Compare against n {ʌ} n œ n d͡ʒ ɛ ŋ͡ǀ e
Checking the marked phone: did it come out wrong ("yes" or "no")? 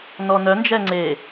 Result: yes